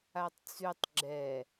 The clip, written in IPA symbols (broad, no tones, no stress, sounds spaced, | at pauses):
a tˤ t͡s ʉ tˤ ɡ͡ǁ ɛ